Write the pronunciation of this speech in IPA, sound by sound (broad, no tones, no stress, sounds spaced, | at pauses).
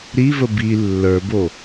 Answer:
ɾ i v ə b i lː ə˞ b o